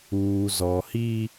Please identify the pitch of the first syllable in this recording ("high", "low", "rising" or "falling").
low